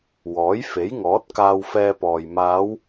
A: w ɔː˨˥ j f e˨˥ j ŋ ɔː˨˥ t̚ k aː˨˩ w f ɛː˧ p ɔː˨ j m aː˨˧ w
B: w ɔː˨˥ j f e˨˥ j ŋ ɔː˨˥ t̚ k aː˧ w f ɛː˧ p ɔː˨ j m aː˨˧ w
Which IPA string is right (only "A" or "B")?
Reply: B